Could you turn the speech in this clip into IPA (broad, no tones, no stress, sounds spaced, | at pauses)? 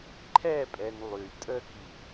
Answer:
ǃʰ ɛ pʼ ɛ n lˠ y tʼ ə k i